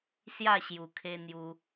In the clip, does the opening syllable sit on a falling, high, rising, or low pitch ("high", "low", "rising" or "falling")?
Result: falling